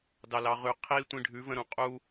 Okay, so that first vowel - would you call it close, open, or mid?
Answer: open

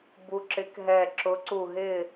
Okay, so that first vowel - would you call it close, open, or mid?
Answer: close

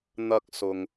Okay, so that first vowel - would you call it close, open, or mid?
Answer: open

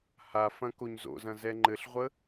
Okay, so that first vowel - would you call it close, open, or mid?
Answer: open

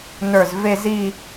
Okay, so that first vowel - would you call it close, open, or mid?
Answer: mid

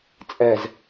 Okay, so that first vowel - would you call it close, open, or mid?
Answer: mid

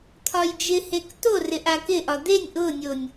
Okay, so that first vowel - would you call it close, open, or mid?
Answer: open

